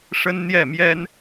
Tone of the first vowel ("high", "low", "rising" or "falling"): high